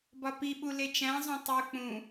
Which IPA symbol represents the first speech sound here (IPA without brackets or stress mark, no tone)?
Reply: b